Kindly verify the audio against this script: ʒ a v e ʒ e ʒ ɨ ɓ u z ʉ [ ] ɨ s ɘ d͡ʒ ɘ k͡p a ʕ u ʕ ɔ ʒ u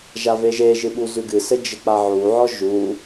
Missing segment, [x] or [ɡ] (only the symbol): ɡ